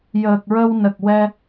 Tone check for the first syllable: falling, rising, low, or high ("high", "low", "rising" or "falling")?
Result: low